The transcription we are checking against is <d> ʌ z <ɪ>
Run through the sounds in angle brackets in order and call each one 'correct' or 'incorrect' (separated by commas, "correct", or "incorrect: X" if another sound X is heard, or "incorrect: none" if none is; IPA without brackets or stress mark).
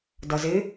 correct, correct